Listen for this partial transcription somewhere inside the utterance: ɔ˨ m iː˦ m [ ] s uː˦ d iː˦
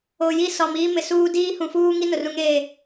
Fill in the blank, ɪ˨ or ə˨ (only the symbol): ɪ˨